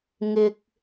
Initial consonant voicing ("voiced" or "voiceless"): voiced